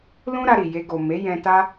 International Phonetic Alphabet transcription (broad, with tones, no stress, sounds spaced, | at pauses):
l ũ˦ ɾ a˧ ɾ i˨ j e˧ ɡ o˨ m e˨˦ j ɛ̃˧ t a˦